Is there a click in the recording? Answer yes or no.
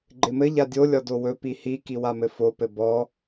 yes